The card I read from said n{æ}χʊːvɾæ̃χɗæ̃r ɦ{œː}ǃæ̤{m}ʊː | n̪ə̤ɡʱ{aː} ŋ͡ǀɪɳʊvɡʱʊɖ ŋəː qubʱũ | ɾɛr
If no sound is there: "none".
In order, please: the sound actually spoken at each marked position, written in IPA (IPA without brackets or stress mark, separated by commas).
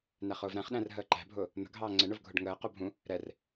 æ, əː, bʱ, ɑː